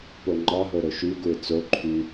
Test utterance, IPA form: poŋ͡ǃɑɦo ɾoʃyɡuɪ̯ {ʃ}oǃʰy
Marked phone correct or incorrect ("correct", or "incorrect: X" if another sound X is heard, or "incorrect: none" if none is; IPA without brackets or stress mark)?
incorrect: t͡s